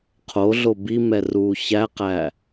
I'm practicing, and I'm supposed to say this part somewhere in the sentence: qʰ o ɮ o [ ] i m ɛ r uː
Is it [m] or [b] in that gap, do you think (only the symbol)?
b